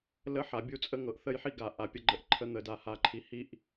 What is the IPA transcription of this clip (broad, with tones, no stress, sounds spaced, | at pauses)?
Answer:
l ə˦ ħ a˨ bʲ u˦ t͡sʼ ə˦ ŋ ɤ˨ ʔ θ ə˦˨ j ħ i˦ ɡ a˨ ʔ a˨ pʲ ə˦ ɡ͡ǃ ə˦ ʔ ǃʰ ə˦ n̪ ə˨ d a˨ h a˨ ǃʰ i˨ h i˦ ʔ